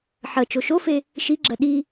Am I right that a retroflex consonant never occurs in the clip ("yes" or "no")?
yes